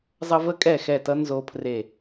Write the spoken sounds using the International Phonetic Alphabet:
zˤʌ˥ və˥kʼɛ˥˨xɛ˥˨tʌ˥ nzo˥pʰre˥˨

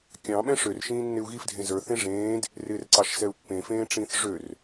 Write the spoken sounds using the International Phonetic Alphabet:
kʲɑ̃ ɓɛ̃ʂør ʃĩːnːɪu̯ɣif dʱẽzə˞ θẽʐẽːd | rɪːrǀɑʃsɛu̯pːẽ fẽːʈ͡ʂĩːθʐør

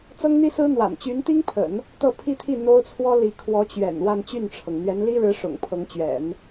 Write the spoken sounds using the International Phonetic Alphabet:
t͡sɤ˥ŋn̪i˥sɹ̩˥n̪wa̰˨˩n t͡ɕy˧˥nt̪i˥ŋpʰə̰˨˩˦n | t̪ɤ˥˧pʰi˥˧t̪ʰi˥˩ n̪o˥ʊ̯t͡sʰwɔ˥li˧˥ kʰwɔ˧˥t͡ɕɥɛ̰˨˩n wa˥˧nt͡ɕy˥˩nʈ͡ʂʰɤ˩ŋ n̪ɥɛ˧˥nli˥ɻɻ̩˧˥ ʂʊ̰˨˩ŋpʰɤ˧˥ŋt͡ɕɥɛ̰˨˩˦n

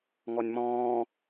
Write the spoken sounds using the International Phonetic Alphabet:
ŋɔnʲmɔ̃ː

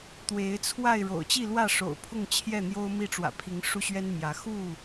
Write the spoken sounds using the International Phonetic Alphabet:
t̪we˨˦ɪ̯t͡sʰwa˥˨ɪ̯ ɻo̰˨˩ʊ̯t͡ɕi˥˨lwä˥˨ ʂo̰˨˩ʊ̯pʰʊ˥˨ŋt͡ɕʰjɛ˥˨ n̪jo˦ʊ̯mi˥˨ʈ͡ʂwä̰˨˩pʰi˨˦ŋ ʂu˦ɕɥɛ˦nmjä˨˦ xu˥˨

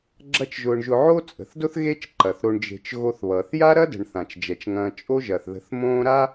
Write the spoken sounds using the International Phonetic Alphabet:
ɡ͡ǁɐ˦t͡ʃʒʊː˨ɳ ʒʊ˨ʕo˦ t͡sʼə̤˩θdʊ˥θɣe˦t͡ʃ ǃɐ˩θɾo˨ɳd͡ʒe̤˨t͡ʃ ɣo˨θβʌː˩θja˦ ɾɐ˥də̤˩ɳ θã˩t͡ʃd͡ʒɛ˩t͡ʃŋɐ̃ː˨ t͡ʃʼo˦ʒɐ˩θðə̤˨θ mõː˦ɾa˥

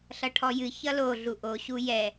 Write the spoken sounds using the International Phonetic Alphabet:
ɬʌʈʰɔjɨ çʌlo ɮuʔo ɕujɛ

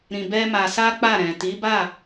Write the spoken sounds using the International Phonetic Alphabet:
ɾĩ˧bɛ˦ma˧ sa˦k͡pa˦˨ ɾɛ̃˨ ti˨˦ba˦˨

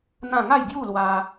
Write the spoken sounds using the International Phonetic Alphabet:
n̪ã˥˧ ŋa˥˧jɡju˥˧lwa˧

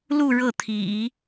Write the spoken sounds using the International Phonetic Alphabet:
lu˥˧ ɻɤ˥˩t̪ʰḭ˨˩˦

